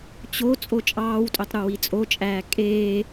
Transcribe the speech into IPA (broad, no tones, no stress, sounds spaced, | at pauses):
t͡ɕ o t͡sʼ o t͡ʃʼ ɑː w tʼ ø tˤ ɾ u w i t͡sʼ o t͡ʃʼ æː kʼ eː